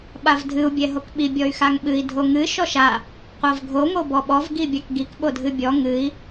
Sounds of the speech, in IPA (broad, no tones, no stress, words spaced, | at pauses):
ɓavdʱɨu̯ bʲɛɦokɓi bʲɔy̯xaŋɓɨi̯ dʱoŋɨ ʃɔʃa | qʷavɡʱo ŋobɔɓɔv ɡibʲakɡik ɓodʱɨbʲɔ ŋɨi̯